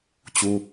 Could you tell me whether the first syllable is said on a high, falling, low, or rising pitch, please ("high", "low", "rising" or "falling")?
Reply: high